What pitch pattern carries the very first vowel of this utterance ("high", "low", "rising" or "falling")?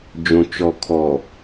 low